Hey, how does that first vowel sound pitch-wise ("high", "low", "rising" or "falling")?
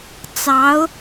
rising